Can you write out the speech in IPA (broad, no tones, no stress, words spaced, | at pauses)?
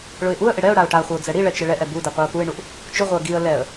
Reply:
ɭʊɪ̯ʔuə̯ʔɪ ɽɛʊ̯ ɽaʊ̯ʈaχʷɪʊ̯ d͡zɛɽiɭɛ t͡ʃɪɭɛʔɛ budi qʷiʊ̯puɪ̯ɳuʔ | t͡ʃʊʁʷɪə̯ ɡiə̯ lɛə̯